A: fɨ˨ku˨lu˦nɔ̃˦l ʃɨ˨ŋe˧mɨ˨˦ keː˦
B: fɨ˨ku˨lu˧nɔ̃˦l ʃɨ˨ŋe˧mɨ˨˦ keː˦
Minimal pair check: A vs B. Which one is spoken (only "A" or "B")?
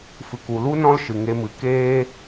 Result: A